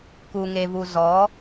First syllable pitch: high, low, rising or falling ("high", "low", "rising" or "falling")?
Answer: low